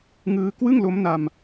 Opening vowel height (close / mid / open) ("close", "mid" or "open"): close